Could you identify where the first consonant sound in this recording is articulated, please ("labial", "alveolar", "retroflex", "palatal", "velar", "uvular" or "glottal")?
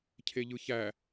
palatal